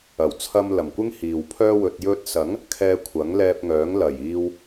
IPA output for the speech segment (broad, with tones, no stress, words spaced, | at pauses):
ɐ˨˩wt͡sʰɐ˧m lɐ˨˩mkʷɪ˥ŋ hiː˨wpʰœː˥wɵ˧t̚ jɵ˧t̚sɐ˨˥ŋ | kʰɛː˧kʷʰɐ˨˥ŋlɛː˧p̚ŋœː˨˥ŋ lɐ˨˩jiː˧w